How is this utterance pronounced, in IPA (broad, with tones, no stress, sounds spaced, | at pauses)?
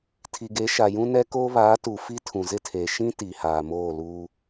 tʰ i˨ ɡ e˨˦ ʃ a˨ j ũ˦ n ɛ˦ k oː˦ β aː˨˦ t u˨ f i˦ tʰ ũ˨ z ɪ˦ tʰ eː˨ ʃ ĩ˦ t i˨ h aː˨ m oː˦˨ l uː˦